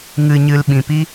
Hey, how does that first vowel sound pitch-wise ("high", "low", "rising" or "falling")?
low